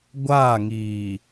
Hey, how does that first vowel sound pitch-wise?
falling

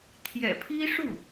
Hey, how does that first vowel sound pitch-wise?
low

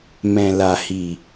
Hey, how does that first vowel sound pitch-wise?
low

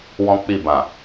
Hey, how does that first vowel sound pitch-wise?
high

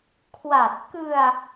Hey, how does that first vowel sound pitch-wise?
low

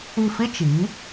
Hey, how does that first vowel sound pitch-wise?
falling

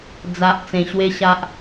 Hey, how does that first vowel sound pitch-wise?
low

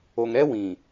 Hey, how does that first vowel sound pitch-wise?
low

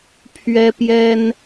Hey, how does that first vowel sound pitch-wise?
high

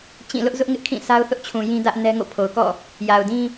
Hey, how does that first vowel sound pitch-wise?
falling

